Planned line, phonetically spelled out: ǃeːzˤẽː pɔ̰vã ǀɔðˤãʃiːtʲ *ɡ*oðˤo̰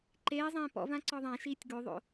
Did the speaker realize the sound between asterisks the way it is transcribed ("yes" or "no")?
yes